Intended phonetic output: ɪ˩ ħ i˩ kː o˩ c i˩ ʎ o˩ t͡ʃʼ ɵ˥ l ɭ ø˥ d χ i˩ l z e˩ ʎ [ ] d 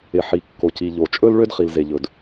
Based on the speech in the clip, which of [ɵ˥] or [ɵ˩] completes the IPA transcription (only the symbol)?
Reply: ɵ˩